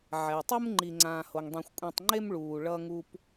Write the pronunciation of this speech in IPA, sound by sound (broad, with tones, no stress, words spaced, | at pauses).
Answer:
ʕɛ˩u̯tˤu˦mŋ͡ǃi˨ ŋ͡ǀãː˨ ho˩ŋdˤẽ˨xʷkʷʼĩ˨tˤŋ͡ǃe˦m ɭuː˨ɭʌ˦ŋu˦p